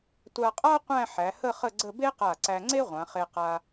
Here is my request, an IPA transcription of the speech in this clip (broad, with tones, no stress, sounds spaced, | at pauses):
tʷ a˧ qʼ a˥ qʷ æ̃˥˧ ħ æ˩˧ h ə˥˧ χ ə˥˧ ɡ͡ǀ ə˥˧ b e˥ q a˧˩ ǀ æ˧ ŋ͡ǀ e˥ ʁʷ ã˩˧ χ e˧ q a˧